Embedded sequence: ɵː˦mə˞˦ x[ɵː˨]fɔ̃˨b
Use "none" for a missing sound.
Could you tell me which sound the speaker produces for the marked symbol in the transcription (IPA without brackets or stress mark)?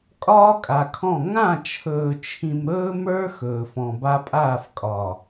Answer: ɵː˨